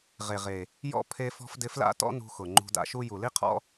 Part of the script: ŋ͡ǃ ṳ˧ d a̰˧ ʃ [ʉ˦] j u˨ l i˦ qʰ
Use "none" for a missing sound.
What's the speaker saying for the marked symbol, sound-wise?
u˦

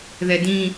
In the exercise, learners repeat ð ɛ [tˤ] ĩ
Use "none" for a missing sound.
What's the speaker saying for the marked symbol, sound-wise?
d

